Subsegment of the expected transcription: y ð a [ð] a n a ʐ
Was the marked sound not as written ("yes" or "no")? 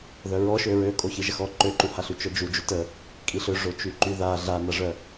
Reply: yes